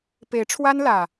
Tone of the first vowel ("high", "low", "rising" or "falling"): rising